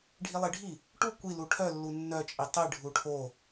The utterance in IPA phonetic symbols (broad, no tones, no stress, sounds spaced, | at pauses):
ɖʱ i lˠ i ɖʱ i | ʈ u kʷ i l u ʈʰ œ lː u nː œ t͡ʃʼ i tˤ i ɖʱ u ʈʰ o